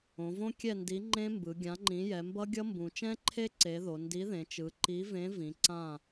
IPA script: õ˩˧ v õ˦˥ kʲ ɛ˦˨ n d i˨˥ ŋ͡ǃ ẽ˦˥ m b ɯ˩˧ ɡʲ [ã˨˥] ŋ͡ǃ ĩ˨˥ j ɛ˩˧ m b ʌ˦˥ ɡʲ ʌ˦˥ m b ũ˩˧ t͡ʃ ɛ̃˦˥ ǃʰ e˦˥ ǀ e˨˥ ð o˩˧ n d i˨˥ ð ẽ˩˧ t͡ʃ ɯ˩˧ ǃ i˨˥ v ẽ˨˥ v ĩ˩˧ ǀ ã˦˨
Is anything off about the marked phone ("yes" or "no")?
no